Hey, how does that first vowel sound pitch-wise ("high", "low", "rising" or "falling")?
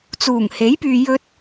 low